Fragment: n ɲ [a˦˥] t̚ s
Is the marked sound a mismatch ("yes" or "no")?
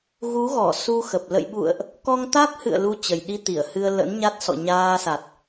no